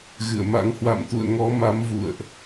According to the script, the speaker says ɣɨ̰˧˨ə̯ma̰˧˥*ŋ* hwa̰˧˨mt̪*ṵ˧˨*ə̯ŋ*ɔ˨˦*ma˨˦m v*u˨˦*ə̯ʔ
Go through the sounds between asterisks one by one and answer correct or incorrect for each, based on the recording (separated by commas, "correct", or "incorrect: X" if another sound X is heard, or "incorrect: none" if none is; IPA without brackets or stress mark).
correct, correct, correct, incorrect: ṵ˧˨